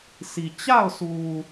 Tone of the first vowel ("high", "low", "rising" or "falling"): low